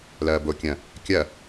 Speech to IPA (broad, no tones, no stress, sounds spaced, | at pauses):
l ɐː b o kʲ ɐ̃ | kʲ ɐ